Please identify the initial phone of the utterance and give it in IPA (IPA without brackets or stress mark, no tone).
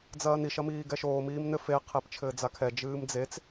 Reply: d͡z